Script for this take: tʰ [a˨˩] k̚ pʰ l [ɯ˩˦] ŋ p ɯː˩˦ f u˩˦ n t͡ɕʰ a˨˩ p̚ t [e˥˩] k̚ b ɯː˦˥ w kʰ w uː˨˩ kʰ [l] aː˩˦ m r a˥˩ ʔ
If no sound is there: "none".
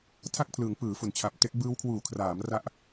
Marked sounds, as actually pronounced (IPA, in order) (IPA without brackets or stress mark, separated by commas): a˥˩, ɯ˩˦, e˦˥, r